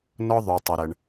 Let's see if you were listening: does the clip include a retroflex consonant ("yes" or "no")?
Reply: yes